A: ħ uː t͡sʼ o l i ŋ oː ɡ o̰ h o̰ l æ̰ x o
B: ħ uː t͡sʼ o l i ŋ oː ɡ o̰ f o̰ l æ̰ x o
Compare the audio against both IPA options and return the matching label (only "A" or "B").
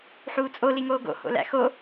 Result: A